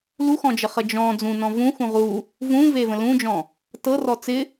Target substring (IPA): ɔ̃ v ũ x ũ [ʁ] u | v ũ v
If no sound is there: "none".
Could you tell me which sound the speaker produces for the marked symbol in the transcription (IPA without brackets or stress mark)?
ʁ